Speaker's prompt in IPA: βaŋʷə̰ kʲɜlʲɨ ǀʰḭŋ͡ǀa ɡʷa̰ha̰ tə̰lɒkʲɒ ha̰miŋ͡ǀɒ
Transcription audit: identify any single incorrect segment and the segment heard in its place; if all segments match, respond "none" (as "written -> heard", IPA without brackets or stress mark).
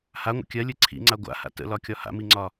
β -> h